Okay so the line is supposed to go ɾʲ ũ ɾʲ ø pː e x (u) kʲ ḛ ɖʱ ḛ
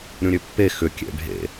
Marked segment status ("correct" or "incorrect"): incorrect